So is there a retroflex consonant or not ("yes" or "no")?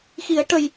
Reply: yes